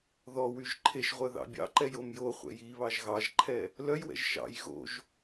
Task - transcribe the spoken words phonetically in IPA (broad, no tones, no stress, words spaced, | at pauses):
ðɔ wyʒǃʰeʃʁʷœ ðɑ̰bʲɑ̰ǃɛj omjoχʷɛ̰j i βɑʒɣɑʒǃʰɛ | lœjwɛ̰ʒ ʃɑ̰j ɣo̰ʒ